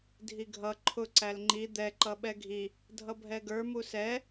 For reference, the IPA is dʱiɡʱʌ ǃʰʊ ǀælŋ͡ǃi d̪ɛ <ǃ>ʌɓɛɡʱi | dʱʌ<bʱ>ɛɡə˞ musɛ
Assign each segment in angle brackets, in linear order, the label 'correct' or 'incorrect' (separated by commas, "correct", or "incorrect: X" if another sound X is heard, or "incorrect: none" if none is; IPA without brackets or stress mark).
correct, correct